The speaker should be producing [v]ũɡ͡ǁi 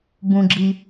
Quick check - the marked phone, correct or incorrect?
incorrect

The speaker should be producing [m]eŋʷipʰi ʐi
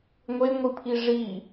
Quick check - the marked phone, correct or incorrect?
incorrect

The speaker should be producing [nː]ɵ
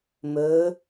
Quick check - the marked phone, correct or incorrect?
incorrect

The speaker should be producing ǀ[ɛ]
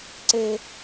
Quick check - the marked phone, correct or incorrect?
incorrect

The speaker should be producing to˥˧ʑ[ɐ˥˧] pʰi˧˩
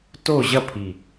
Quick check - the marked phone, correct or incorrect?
correct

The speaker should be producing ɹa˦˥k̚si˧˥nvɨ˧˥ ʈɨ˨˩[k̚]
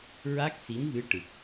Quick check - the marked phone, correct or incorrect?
correct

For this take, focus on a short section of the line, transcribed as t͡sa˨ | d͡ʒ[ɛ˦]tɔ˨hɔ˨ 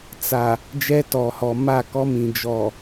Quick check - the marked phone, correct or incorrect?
correct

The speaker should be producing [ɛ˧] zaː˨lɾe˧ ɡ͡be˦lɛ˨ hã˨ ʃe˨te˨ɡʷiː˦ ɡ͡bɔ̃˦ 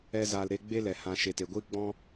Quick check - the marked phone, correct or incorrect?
correct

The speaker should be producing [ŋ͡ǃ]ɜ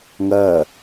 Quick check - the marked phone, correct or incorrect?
incorrect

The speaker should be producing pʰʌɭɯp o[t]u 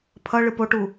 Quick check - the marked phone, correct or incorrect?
incorrect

